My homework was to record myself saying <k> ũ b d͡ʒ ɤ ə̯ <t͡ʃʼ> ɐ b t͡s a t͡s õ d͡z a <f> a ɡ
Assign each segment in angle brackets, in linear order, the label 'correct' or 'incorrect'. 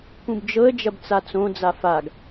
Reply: correct, incorrect, correct

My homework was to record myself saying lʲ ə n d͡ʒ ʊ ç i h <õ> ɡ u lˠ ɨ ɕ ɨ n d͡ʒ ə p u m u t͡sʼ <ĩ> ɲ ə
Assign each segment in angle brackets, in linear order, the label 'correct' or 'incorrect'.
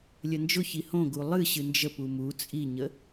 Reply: correct, incorrect

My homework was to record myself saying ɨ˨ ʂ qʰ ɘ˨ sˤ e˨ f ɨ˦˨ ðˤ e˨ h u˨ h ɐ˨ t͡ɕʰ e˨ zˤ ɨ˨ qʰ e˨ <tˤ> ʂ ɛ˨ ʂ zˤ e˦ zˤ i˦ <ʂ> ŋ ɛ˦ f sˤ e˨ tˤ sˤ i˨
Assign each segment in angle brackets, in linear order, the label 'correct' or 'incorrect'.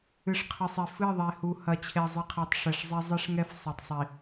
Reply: correct, correct

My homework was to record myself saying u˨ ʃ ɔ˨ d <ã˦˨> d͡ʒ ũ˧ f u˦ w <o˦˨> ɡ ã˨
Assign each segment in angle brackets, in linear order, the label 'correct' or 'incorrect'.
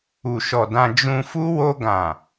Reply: incorrect, incorrect

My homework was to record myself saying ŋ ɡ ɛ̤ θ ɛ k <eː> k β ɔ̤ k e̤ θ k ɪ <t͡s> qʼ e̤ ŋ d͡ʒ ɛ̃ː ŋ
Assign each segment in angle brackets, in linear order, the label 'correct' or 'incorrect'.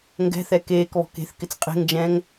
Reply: correct, correct

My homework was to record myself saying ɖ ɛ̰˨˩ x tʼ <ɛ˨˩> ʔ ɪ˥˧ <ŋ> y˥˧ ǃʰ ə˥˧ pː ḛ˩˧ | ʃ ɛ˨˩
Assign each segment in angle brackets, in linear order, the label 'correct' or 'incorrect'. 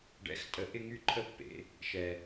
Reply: incorrect, correct

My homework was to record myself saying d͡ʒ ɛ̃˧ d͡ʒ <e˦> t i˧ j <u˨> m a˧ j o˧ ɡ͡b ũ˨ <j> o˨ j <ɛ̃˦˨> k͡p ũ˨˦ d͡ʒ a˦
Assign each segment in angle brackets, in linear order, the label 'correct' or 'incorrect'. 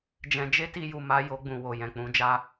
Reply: correct, correct, incorrect, incorrect

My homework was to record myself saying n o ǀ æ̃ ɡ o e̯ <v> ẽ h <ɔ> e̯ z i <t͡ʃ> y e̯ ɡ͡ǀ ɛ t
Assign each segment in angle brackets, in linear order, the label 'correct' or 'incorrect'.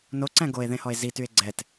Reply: incorrect, correct, incorrect

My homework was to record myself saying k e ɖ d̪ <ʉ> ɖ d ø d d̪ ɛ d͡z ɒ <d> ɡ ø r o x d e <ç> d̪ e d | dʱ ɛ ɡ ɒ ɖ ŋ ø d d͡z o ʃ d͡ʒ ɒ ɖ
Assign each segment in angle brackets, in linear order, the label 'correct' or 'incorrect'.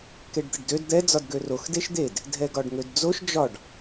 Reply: incorrect, correct, incorrect

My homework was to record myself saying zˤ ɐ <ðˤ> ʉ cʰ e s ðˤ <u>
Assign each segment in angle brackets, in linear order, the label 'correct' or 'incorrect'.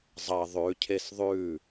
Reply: correct, incorrect

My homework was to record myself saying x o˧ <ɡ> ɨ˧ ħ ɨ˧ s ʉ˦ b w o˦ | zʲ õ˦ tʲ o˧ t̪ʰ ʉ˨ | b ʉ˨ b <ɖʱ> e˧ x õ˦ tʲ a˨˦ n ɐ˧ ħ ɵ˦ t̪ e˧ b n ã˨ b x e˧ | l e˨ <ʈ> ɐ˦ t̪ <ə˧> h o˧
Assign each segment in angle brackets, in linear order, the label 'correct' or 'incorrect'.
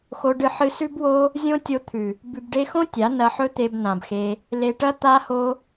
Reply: incorrect, incorrect, correct, incorrect

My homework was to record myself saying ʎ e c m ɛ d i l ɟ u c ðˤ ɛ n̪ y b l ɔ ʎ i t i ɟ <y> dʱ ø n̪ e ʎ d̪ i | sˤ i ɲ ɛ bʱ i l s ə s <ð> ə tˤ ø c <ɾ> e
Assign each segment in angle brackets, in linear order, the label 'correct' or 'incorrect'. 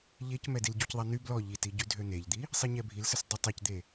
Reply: correct, incorrect, incorrect

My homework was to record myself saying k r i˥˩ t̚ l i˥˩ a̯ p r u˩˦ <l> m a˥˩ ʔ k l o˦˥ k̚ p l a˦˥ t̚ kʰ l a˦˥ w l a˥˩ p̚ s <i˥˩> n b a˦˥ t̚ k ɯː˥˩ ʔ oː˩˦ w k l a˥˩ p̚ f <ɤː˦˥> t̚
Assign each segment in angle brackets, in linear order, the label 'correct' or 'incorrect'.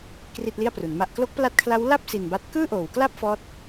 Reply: incorrect, incorrect, incorrect

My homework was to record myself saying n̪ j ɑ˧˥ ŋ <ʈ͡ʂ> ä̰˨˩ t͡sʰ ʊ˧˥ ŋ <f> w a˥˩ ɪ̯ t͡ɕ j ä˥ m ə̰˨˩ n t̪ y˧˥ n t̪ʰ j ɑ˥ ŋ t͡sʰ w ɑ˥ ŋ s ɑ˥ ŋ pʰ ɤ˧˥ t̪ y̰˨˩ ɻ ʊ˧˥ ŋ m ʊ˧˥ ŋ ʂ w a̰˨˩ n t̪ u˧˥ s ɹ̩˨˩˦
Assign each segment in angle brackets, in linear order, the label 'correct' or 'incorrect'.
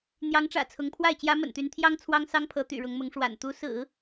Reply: correct, incorrect

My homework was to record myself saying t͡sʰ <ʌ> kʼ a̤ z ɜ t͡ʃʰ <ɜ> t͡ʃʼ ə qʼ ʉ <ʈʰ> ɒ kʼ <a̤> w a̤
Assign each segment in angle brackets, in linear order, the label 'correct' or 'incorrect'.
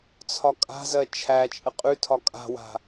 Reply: incorrect, incorrect, incorrect, correct

